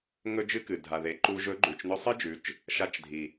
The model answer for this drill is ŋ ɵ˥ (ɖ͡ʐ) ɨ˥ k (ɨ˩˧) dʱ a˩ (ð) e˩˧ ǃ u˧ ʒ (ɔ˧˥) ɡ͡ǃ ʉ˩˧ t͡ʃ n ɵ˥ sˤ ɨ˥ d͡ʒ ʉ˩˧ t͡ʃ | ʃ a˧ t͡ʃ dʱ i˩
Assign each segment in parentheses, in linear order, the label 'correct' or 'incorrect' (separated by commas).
incorrect, incorrect, correct, incorrect